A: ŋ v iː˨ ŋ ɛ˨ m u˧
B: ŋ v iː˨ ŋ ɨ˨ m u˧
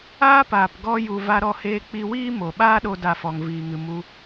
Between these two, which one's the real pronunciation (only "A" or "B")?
B